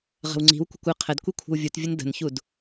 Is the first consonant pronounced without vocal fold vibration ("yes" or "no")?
no